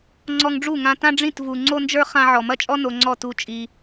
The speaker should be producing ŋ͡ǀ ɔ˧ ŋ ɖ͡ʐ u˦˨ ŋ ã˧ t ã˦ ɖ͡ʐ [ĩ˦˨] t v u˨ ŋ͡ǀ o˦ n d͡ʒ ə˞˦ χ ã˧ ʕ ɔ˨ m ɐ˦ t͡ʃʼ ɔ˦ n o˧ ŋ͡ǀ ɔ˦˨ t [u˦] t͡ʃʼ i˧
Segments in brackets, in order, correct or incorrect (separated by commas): correct, correct